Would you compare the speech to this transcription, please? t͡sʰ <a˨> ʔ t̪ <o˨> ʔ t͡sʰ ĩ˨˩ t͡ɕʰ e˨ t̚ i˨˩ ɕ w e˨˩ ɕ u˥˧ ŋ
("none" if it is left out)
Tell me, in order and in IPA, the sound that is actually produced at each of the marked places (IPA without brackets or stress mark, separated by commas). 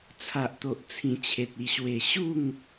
a˨, o˨